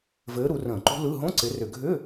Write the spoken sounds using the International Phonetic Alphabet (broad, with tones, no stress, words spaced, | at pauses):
vɘː˨˦ ɾu˨˦rə̃ː˧˩˧ǃṳ˦˥ lɯ˧˥˧ ɦõ˧˥˧ǀɪ˨˦rʏ˧˩˧ ɡʱʏː˧˥˧